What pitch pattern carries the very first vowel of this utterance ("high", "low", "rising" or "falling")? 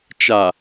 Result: low